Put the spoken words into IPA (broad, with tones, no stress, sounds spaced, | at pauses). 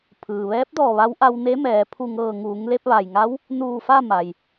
pʰ ɯː˩ ʋ ɛː˧˥ p̚ d ɔː˧˩ ʋ a˧˥ w ʔ a˧ w n e˧˥ m ɛː˩˧ pʰ u˧˩ ŋ ɤː˧˩ ŋ uː˩˧ ŋ l e˧ p̚ ʋ a˩ j ŋ a˧˥ w | n uː˧˩ f a˥˨ m a˩ j